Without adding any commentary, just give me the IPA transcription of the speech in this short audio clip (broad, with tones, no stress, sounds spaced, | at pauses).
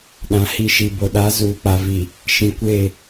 ɗ ã˨ h i˦ ʃ i˨ b o˨ ɗ a˨˦ z uː˨ k͡p a˨ v i˨ | ʃ ĩ˨ kʷ e˦˨